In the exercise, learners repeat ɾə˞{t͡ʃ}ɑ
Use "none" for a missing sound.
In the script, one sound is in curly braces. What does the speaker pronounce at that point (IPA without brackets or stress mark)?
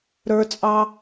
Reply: t͡sʼ